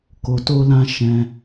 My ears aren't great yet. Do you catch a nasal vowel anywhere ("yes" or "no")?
yes